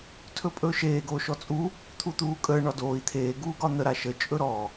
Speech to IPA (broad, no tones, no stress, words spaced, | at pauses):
tʰɵpʼɵːʃeː ɡoːʃɔt͡sʼu | t̪ʰut̪uːkʼəː ɳɒdoːi̯ t̪ʰeː ɡuːɡɒn̪ə ɾaʃə t͡ʃʼɵɾɔ